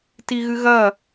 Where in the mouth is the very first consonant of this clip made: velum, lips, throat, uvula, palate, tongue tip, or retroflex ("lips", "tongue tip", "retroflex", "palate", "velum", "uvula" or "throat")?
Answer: tongue tip